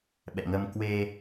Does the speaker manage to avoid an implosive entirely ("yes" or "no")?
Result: no